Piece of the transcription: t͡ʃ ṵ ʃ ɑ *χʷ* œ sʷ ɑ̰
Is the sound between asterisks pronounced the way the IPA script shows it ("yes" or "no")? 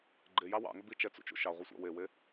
no